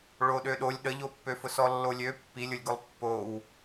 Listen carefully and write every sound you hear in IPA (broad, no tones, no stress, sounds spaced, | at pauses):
ɭ o ɗ ø ɗ o lʲ ɗ ə ʎ o pː ø f ʊ s ɔ lː o lʲ ø pː i lʲ ʊ lʲ ɡ ʊ lˠ pː o w